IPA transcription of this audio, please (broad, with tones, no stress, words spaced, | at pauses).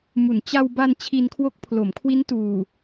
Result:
mu˩˦nt͡ɕa˧w ba˧n t͡ɕʰi˧nkʰwo˦˥k̚ pʰlo˩˦mkʰwi˦˥n tuː˨˩